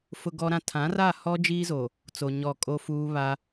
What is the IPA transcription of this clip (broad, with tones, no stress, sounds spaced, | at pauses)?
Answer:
f ʊ˨ ɡ ɔ˨ ɾ ã˨ tʰ ã˨˦ r a˦˨ h ɔ˦ d͡ʒ iː˦ z o˨ | t͡s o˨ ɲ ɔ˦˨ kʼ o˦ f uː˦ β a˦